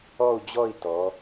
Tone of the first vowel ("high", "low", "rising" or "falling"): falling